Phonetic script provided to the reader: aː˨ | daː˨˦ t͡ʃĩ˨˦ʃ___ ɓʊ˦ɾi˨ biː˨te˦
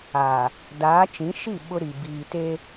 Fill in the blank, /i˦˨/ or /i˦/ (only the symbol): i˦˨